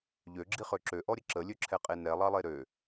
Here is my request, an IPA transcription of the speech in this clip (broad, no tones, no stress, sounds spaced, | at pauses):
ʎ ø ɡ͡ǁ i χ ø ǁ ø ʔ ɔ ɾʲ ə ǁ ə lʲ ø ǁʰ ɛ qʼ e n ɛ lˠ ɑ lˠ e ɾ ø